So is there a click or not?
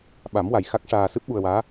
no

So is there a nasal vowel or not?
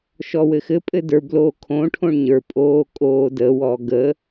yes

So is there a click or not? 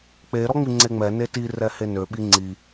yes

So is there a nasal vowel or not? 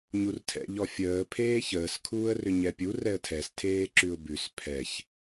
no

